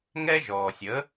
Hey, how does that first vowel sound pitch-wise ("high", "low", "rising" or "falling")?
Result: high